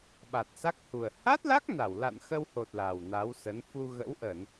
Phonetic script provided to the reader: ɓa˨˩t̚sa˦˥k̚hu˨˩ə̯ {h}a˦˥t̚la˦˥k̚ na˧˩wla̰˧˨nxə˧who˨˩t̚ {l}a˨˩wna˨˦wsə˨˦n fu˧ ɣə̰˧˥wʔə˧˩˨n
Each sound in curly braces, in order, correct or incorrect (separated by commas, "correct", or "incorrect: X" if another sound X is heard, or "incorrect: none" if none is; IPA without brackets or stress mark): correct, correct